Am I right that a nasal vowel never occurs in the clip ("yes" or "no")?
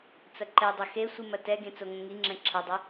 no